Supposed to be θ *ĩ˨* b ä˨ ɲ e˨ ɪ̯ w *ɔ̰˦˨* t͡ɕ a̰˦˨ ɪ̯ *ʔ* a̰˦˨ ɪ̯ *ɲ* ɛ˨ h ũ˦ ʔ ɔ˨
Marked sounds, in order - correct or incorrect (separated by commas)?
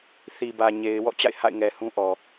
incorrect, correct, incorrect, incorrect